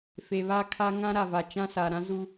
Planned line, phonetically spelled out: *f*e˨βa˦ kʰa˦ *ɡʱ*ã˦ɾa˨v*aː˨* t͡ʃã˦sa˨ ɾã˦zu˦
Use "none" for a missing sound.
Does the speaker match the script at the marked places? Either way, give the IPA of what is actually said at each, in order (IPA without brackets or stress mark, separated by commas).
f, ŋ, a˨